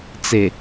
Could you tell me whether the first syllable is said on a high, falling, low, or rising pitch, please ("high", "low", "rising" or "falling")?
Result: low